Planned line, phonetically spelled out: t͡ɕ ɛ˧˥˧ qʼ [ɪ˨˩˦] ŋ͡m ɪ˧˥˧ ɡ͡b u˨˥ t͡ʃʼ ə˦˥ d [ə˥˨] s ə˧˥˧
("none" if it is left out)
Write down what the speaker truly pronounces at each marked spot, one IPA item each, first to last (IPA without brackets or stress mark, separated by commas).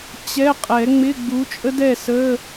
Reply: ɛ˨˩˦, ɛ˥˨